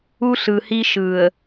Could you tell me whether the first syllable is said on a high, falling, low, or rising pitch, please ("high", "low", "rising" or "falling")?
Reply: high